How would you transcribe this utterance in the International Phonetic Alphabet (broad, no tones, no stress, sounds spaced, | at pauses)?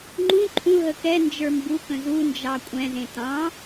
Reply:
ŋ͡ǃ ũ ǃʰ ũ ɦ ə k ɛ n d͡ʒ ə˞ m b u k ə̃ z u n d͡ʒ ɑ kʷʼ ɛ̃ z ẽ t ɑ̃